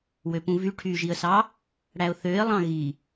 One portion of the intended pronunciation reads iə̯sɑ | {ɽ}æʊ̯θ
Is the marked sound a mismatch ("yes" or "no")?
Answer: no